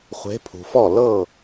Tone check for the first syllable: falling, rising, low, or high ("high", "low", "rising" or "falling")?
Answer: rising